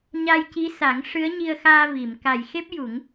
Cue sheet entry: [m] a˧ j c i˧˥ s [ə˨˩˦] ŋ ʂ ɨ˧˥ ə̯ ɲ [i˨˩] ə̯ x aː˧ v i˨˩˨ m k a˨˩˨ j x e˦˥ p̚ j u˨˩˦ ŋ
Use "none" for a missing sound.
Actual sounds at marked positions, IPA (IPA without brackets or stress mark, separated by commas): ɲ, a˨˩˦, i˧